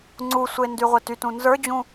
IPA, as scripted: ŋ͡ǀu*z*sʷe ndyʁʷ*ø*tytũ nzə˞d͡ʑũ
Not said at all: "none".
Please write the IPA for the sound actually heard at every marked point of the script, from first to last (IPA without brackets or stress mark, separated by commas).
none, e